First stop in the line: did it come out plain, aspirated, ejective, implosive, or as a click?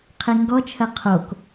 aspirated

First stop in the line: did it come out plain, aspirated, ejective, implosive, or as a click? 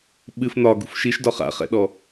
implosive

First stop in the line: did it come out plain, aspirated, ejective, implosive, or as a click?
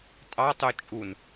ejective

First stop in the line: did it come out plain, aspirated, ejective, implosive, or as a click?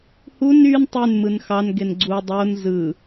plain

